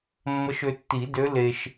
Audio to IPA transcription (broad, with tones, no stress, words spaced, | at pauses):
mːə˧˥ʃø˧tːi˨˩˦dø˧˥ le˧ʃ